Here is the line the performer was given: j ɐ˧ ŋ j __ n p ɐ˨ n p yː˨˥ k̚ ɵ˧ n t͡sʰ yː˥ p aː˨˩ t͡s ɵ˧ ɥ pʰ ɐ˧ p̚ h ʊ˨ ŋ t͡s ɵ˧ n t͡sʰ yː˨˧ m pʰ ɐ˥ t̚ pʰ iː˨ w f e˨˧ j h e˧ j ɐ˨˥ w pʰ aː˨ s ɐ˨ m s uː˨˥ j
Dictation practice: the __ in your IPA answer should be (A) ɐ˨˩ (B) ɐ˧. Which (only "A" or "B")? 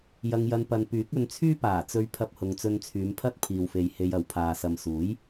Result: B